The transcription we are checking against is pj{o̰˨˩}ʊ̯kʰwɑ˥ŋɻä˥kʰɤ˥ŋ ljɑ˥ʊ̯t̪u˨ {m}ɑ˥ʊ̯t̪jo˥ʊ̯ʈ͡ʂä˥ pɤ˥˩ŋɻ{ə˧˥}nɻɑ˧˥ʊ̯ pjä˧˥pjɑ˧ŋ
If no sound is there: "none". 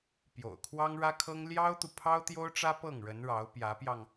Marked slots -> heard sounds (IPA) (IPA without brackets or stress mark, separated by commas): o̰˨˩, pʰ, ə˧˥